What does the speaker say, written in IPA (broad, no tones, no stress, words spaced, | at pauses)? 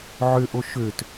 ʕøʔo ʃøt